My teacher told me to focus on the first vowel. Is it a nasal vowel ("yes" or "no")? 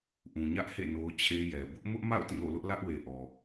yes